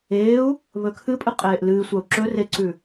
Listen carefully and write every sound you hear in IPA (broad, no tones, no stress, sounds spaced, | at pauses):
eː u̯ | β ɵ kʰ ɨ pʼ ɨ qʼ eː ʔ l ɨː sʷ a u̯ ǁ ɵ r e ǀ ʉ